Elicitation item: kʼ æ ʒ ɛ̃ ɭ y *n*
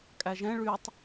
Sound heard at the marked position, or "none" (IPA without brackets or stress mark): tˤ